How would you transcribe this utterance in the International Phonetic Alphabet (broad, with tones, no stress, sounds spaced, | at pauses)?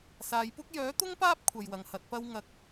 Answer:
s aː˨ j p ʊ˥ k̚ j œː˨˥ t̪ ʊ˥ ŋ p aː˥ p̚ kʷʰ ɐ˧ j w ɐ˨˧ ŋ h ɐ˨˥ t̚ p ɐ˥ w ŋ ɐ˧ k̚